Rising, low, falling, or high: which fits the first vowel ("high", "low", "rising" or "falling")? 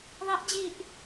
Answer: rising